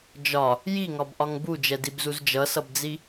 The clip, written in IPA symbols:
d͡ʒɒ | jiŋɒbʔɒŋ bud͡ʒɛdibzuz d͡ʒʌsʌbd͡zi

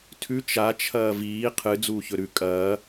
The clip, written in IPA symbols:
tʰʉ t͡ʃa t͡ʃʰɐːviː qʰɨ d͡zuːçɵɾʉ kʼɐː

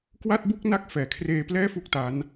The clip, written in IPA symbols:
kwa˥˩t̚bu˥˩k̚ na˦˥k̚ fɛː˩˦kʰreː˧plɛː˥˩ fu˥˩k̚ta˦˥n

